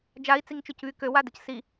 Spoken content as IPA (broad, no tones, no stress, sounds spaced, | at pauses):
d͡ʒ a i̯ t͡s i ŋ t͡ʃ ø c β y k ø w a d ə c s i